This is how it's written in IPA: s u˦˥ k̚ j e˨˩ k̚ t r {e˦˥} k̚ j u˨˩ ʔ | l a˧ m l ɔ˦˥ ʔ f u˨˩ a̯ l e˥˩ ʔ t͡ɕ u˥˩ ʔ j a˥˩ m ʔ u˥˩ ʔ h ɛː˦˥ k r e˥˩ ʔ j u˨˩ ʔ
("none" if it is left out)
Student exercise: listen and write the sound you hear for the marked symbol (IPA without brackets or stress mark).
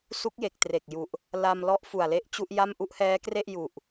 e˨˩